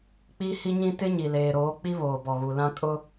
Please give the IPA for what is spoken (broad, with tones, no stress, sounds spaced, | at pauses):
k͡p i˦ h i˦ ɲ ĩ˦ t ɪ˦ ɲ i˨ l eː˨ ɾ oː˨˦ k͡p i˦ β oː˨ b ɔ˨ ɣ u˨ l ã˦ kʼ ʊ˦